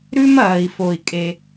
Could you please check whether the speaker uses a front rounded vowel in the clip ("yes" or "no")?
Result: no